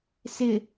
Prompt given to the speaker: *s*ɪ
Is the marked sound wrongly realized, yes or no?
no